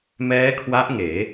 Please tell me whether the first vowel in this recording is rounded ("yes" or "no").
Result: no